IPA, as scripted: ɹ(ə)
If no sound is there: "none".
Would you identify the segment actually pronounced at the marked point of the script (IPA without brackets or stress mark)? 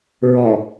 ɔ